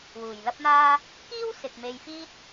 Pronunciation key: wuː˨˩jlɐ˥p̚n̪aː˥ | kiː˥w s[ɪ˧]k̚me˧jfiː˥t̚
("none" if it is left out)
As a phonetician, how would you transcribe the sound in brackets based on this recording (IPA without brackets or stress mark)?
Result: ɪ˨